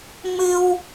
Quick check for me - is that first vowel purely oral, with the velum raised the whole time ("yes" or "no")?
yes